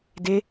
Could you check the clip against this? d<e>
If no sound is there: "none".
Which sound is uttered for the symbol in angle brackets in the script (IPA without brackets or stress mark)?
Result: e